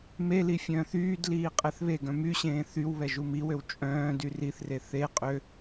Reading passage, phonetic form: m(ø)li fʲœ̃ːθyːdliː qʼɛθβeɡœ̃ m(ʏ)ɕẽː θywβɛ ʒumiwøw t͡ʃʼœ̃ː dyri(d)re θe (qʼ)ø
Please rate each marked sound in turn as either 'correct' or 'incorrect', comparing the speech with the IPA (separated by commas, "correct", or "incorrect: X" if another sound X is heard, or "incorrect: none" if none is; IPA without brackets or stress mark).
incorrect: e, incorrect: y, incorrect: θ, correct